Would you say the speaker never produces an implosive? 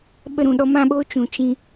no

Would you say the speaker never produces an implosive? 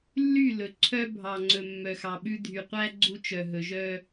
no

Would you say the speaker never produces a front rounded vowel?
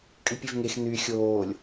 no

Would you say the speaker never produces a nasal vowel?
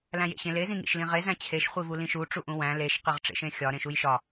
no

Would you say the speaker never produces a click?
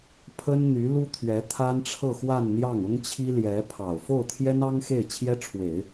yes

